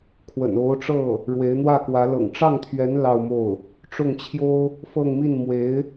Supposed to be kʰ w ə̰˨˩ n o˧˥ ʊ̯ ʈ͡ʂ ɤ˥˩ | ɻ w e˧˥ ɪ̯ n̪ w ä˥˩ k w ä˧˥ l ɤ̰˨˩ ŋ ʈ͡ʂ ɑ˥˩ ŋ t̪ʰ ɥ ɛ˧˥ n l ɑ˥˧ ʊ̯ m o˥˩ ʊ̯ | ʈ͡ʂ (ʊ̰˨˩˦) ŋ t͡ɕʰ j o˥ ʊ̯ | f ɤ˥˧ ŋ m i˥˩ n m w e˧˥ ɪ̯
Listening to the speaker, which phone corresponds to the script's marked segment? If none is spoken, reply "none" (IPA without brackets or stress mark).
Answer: ʊ˥˩